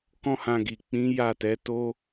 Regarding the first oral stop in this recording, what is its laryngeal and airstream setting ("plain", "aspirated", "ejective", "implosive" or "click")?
plain